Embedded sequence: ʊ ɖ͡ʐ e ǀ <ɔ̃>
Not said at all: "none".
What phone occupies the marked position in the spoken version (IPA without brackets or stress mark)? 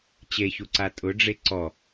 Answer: ɔ